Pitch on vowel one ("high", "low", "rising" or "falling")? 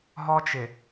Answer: high